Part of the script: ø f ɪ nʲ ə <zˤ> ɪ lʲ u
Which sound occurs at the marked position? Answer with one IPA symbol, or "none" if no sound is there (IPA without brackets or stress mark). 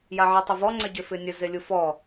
z